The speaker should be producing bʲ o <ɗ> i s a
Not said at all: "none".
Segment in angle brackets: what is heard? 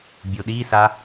ɗ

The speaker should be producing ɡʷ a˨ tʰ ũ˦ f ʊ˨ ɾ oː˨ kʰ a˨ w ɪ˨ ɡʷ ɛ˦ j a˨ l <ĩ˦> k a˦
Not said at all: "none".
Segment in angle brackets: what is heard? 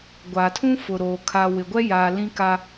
ĩ˦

